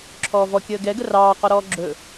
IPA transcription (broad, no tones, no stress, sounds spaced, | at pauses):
ǁʰ ɔː v ɔ kʲ əː ɡ ɛ ɡ ə r ɑː q ɔ ɾ ɔː ɡ͡ǁ ɵ